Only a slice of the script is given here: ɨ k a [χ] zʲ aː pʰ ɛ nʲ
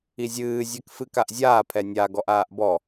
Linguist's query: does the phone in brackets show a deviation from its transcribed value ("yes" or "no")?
yes